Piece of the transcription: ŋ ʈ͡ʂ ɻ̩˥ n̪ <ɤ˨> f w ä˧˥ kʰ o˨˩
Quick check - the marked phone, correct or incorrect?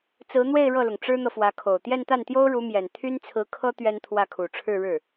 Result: correct